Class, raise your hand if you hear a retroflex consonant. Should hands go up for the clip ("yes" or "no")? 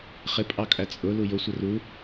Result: no